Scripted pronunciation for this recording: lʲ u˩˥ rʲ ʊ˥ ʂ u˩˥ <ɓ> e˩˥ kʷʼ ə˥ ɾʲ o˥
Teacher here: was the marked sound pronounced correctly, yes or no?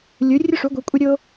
no